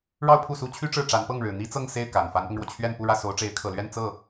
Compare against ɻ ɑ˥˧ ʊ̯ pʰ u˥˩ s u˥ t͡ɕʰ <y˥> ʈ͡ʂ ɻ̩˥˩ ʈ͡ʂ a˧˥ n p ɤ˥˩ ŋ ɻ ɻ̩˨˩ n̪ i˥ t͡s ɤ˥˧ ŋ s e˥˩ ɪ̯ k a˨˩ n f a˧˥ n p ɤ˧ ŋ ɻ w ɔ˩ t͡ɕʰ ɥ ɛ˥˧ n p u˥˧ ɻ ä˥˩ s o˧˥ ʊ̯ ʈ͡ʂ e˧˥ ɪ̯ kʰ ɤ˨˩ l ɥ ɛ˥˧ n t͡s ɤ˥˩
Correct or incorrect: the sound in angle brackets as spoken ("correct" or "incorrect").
correct